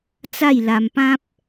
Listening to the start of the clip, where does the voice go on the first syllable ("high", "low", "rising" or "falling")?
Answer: falling